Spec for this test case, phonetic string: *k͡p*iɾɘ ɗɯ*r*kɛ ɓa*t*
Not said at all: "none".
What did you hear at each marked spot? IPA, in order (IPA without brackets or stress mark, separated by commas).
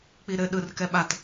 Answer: k͡p, r, t